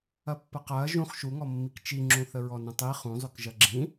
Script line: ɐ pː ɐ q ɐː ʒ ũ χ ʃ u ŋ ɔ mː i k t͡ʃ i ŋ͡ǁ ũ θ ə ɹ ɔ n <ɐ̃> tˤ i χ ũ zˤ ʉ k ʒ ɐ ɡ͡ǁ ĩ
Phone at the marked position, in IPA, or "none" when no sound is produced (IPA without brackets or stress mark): ɐ̃